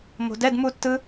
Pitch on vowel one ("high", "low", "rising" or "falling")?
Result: low